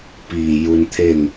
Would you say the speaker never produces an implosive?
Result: yes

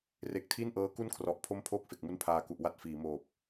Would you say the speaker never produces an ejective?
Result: yes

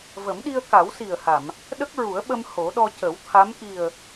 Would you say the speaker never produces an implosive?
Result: no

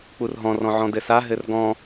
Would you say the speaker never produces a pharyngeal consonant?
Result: no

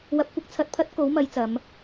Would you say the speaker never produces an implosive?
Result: yes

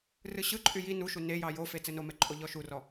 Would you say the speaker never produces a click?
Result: no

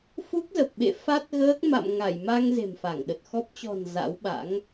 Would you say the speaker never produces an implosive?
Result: no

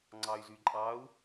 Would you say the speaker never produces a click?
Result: no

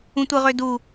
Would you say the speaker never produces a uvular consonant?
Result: no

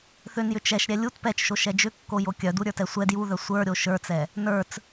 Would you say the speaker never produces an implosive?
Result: yes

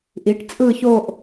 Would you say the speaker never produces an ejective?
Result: no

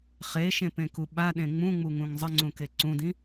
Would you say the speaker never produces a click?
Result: no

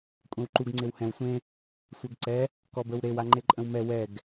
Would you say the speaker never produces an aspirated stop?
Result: yes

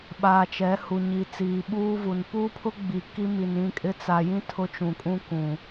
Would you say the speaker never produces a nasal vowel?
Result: no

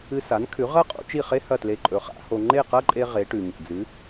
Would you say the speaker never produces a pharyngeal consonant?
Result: yes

